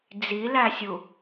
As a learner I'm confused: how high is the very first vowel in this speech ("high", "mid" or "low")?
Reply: high